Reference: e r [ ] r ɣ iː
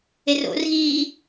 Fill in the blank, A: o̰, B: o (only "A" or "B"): A